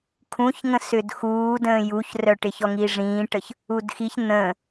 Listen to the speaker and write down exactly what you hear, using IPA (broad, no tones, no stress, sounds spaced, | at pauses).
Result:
kʰ ũ ç ŋ ə̃ s ʏ d x uː d ə̃ː j u ç r œ ʈ ɪ ç ɔ ŋ i ʐ ĩː ʈ ə ç | u d x i ç n̪ ə̃